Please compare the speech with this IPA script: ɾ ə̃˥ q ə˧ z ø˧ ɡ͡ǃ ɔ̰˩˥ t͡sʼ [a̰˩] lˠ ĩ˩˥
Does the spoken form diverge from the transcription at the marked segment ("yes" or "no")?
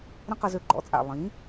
no